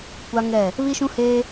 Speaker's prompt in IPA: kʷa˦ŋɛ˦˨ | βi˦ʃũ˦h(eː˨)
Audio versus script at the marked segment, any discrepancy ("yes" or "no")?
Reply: yes